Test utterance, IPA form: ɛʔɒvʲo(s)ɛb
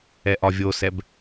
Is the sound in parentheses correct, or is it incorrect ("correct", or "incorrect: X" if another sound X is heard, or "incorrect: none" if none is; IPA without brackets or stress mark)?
correct